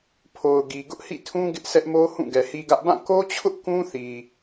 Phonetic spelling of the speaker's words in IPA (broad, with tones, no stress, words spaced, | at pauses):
pʰo˨ʊ̯ɡi˨ ɡʊ˦ʔhḭ˦˨tʰũ˦ ɡɪ˦ʔsɛ˦ʔmo˦ hũ˦˨ɡɛ˨hi˦ɡä˦ʔ bã˦˨ ko˦t͡ɕʰʊ˦ʔ kũ˦θi˨